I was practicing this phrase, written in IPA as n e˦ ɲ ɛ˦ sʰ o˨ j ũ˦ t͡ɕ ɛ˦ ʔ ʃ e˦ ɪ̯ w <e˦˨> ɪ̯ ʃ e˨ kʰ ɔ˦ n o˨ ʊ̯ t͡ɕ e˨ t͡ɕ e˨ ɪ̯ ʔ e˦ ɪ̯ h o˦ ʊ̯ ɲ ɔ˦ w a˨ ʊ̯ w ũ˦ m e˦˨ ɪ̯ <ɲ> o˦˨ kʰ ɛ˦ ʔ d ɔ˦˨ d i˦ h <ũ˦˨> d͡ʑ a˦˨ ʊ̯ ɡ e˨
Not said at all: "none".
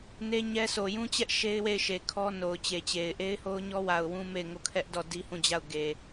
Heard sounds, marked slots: e˦˨, ŋ, ũ˦˨

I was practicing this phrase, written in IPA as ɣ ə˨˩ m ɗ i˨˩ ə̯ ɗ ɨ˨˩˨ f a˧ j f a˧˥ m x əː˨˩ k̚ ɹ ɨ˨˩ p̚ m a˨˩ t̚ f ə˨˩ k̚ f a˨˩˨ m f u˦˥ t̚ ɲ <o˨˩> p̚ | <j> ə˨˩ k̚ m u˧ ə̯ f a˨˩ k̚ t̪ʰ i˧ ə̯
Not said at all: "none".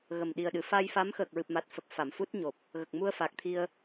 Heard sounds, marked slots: o˨˩, ɣ

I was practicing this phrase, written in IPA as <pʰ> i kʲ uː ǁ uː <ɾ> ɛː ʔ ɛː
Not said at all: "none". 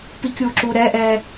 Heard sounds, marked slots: p, ɾ

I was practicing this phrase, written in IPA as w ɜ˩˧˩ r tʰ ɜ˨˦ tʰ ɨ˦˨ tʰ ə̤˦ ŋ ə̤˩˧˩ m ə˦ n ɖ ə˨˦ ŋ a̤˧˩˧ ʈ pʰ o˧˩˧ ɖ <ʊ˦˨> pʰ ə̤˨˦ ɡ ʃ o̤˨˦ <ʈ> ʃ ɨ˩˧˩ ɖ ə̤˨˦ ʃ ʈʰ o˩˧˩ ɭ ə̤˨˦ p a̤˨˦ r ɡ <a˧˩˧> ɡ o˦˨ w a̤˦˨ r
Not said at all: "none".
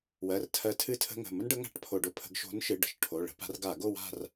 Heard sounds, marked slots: ʊ˦˨, n, a˧˩˧

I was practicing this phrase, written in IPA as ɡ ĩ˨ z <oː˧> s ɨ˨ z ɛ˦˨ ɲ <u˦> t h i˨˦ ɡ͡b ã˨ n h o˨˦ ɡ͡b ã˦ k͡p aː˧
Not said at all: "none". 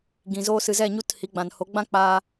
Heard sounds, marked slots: oː˧, u˦˨

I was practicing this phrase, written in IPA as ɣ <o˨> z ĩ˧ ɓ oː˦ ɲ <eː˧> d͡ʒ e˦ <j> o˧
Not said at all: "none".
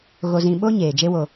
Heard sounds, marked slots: o˧, eː˨, w

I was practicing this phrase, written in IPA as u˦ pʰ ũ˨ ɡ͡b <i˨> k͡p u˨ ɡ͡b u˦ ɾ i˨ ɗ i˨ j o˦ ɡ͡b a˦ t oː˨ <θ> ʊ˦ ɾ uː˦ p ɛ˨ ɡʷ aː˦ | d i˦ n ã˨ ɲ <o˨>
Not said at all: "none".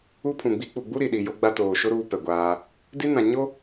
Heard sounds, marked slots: i˦, ʃ, o˦

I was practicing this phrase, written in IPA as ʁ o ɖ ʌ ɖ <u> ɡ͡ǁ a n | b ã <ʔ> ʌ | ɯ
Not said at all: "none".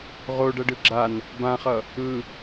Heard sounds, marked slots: ɯ, χ

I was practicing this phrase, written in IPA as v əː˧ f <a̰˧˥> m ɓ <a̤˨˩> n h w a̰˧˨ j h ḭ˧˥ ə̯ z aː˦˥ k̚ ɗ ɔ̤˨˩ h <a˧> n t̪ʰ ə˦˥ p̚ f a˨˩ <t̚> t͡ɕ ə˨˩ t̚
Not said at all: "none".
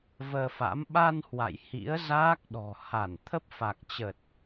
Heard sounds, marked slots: a̰˧˥, a˧, a˧˩, k̚

